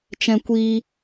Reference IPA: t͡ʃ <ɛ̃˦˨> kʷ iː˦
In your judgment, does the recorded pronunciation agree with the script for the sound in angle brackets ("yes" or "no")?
no